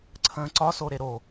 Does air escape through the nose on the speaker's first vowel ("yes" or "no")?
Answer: yes